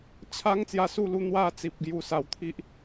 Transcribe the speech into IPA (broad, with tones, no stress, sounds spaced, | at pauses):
t͡ɕʰ a˦ ŋ t͡s j a˧ s u˥˧ l u˧ n̪ w a˥˧ t͡s i˨ p̚ ɡ j u˨˩ s a˨˩ w t̪ʰ i˦ ʔ